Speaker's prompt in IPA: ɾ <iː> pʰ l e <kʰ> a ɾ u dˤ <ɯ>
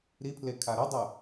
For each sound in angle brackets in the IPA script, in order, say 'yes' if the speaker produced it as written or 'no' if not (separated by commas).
no, yes, yes